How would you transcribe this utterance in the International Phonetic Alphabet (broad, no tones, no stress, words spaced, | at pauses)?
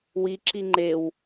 wiǁi ŋ͡ǃew